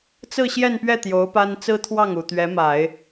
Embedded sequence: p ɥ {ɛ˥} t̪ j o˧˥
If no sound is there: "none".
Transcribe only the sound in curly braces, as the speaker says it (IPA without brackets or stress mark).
ɛ˥˩